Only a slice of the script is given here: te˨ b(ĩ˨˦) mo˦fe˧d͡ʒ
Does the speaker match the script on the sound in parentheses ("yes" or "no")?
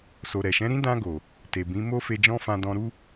yes